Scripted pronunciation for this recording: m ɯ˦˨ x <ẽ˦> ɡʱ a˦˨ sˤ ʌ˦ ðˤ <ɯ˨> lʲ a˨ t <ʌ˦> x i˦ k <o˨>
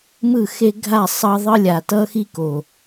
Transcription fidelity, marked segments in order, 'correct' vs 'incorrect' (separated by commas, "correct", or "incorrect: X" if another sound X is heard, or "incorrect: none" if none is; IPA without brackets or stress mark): incorrect: e˦, incorrect: ɯ˦, correct, correct